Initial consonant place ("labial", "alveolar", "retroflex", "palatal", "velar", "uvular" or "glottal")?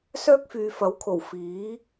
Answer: alveolar